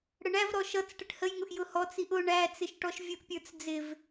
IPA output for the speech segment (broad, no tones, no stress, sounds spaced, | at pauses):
ɽ ə ɳ æ v ɾ ɔ ʃ ʌ t͡s ʈ ə ʈ h ə j ŋ ʊ ʔ j ʊ h ɔ t͡s i ʔ ʊ ɳ æ t͡s ɪ ʃ ʈ ɔ ʃ vʲ ʊ ʔ pʲ ə˞ t͡s d͡z ɪ v